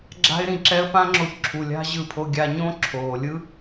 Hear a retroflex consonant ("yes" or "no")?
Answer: no